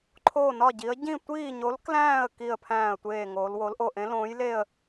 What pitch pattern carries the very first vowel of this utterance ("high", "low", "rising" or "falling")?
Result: falling